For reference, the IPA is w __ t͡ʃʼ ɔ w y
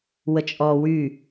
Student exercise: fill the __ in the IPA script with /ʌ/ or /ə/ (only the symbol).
ə